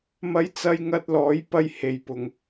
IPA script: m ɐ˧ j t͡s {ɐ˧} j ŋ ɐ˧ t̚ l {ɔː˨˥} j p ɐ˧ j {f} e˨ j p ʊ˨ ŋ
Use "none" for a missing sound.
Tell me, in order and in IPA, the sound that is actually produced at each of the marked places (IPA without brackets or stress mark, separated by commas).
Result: ɐ˧, ɔː˨˥, h